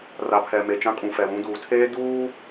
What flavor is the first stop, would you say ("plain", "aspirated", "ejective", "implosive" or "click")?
aspirated